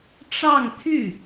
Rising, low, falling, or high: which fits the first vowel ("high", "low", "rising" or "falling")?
falling